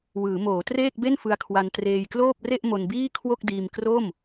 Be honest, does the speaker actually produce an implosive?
no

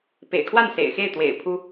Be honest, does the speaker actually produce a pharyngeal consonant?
no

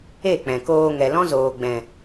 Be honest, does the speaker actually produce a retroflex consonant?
no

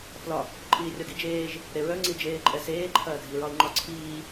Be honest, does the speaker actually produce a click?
yes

